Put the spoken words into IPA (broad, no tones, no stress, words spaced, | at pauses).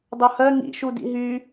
dˤohɜ ŋḭ ʃudḭɦy